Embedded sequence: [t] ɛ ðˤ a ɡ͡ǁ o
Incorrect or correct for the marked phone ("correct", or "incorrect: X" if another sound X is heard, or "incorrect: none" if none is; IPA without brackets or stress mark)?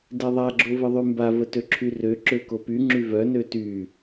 incorrect: d